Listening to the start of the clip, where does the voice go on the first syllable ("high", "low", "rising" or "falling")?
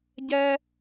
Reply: high